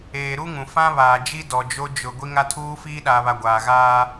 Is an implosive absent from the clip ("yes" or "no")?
no